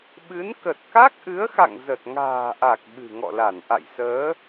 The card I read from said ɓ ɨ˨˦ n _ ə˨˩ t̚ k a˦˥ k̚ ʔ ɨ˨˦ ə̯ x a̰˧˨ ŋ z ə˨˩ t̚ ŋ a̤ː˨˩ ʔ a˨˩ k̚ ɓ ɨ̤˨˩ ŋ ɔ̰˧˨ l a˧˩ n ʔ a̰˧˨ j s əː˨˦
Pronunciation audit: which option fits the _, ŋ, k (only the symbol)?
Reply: k